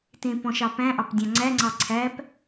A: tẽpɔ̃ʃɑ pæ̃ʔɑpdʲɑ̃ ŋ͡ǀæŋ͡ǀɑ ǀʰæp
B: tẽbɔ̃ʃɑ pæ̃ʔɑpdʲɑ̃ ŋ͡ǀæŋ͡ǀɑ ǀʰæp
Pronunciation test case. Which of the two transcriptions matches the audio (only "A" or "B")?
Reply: A